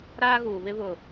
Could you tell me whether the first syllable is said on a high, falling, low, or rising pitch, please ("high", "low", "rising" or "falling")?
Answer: high